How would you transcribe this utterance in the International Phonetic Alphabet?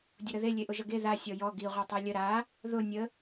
dʲʊɾəðe lʲeʔʊʒʌɡe ða sʲɔjɔ ɡi ʁʷatˤalʲə ɾa | ðʊ nʲə

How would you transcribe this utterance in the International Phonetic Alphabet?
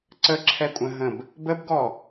ǀəǁʰɛkʷʼə̃ɦə̃b | bəbɡɔ

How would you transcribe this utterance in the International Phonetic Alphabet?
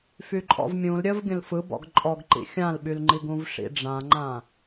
fyǃʼɔ̰vmʲũl ɾʲəv ɡʲə̃lfɯbɔ̰ɡ ǃʼɔɡǃḭ xʲãlɓylŋ͡ǃiɡ ũvʂḭɖ͡ʐãŋ͡ǃã

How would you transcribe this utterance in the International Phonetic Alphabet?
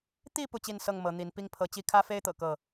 t̪i˥˨ pu˥˨t͡ɕi˥˨nsɤ˥˨ŋ mɤ˨˦n̪i˨˦n pi˦ŋpʰɤ˨˦t͡ɕi˦ kʰä˦fe˦ɪ̯t̪ɤ̰˨˩ kɤ˥˨

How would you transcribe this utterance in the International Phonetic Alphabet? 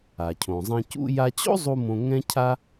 a˩cʰõ˩zˤɛ̃˧ cṵ˧ja˧t͡ɕo̰˥zˤu˧ mõ˧ ŋɛ̃˥cʰa˥

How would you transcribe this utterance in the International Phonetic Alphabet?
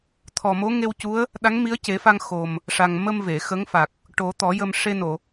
t̪ʰɔ˨˩mo˧˥ŋe˧wcu˧˥ə̯ | ɗa˧˥ŋmi˧˥ə̯ce˨˩˦fa˧ŋ xo˨˩m | ʂa˨˩ŋ mə˧m ve˨˩˨xə˧˥ŋfa˨˩k̚ | ʈo˨˩˦t̪ɔ˨˩˦jə˧m ʂe˧no˨˩˨

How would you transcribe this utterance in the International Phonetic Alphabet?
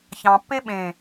çɑ̃pːe ɓẽ

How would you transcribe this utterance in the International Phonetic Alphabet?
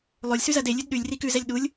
lˠolʲsʉzɜd elʲʉd ɗʉlʲri kʉzɛlʲ ɗulʲ

